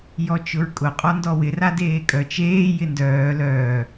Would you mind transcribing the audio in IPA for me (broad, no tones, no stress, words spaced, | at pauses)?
jɔt͡ʃʊɹkʼʊ qʼɔndɔwɪ radeːkʼœ t͡ʃeː jɪndœː lœː